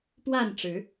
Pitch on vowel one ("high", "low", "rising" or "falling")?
falling